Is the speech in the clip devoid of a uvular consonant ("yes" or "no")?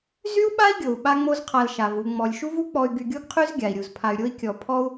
no